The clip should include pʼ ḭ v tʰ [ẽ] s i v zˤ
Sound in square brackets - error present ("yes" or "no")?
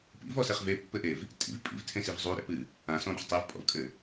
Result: no